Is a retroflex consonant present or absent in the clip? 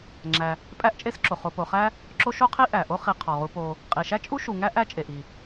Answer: absent